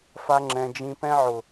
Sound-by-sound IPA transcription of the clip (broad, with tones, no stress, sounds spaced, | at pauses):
f a˦ ŋ͡ǁ ɛ̃˦ d͡ʒ ĩ˦ p ɛ̃˦ ʕ ʊ˨